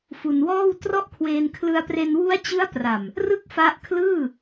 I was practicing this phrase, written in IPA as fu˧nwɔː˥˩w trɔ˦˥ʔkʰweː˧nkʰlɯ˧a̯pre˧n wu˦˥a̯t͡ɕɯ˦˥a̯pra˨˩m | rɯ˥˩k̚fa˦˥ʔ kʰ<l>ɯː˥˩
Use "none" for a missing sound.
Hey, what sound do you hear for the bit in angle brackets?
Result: l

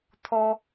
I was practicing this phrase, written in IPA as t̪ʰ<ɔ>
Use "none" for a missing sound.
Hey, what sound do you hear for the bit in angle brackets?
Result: ɔ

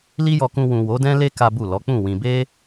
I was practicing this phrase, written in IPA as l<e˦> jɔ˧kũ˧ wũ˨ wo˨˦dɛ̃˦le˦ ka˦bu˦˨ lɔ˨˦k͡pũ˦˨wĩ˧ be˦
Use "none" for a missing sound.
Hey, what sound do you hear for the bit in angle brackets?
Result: i˦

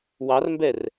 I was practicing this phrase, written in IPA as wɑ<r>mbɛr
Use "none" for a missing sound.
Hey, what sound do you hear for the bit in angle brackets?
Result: r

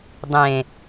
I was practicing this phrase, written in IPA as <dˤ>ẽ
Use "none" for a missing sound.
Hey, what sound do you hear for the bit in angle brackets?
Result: dˤ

